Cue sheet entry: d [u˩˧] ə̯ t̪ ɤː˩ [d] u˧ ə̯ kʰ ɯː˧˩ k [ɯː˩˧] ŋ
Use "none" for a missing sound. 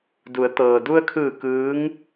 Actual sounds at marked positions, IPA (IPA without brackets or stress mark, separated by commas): u˩˧, d, ɯː˧˥